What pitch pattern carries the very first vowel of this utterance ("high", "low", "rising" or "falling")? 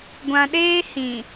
low